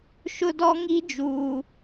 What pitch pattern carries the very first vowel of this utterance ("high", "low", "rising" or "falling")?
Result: high